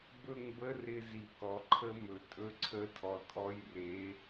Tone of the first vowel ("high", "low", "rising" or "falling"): falling